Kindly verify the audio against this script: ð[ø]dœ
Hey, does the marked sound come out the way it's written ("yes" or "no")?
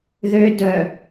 yes